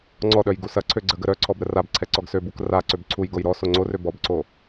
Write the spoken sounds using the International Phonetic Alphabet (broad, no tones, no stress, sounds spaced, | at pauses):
ŋ͡ǀ ɔ ɗ œ j ɡ u s ɐ ǀʰ ø ɡ͡ǀ ə ɡ ə ɾ œ ǀʰ ɔ b ɾ ə r a b ǀʰ ɛ ǀ ɔ ɡ s ø b u k r a ǀ ø b ǀʰ u j ɡ o j ɾ ɔ s o ŋ͡ǀ o r ø b ɔ b ǀ o